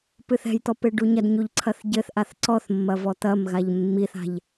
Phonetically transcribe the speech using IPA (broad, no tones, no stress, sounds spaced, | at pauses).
p ɨ θ ɛ̤ j t̪ ɔ p e ɖ u ɲ ɐ d ɲ u ʎ ǀʰ ɐ θ ɟ ɘ θ ʔ a θ ǀ ɔ θ mː ɐ v ɔ t̪ ɐ m ɣ a ʎ mː i θ a̤ ʎ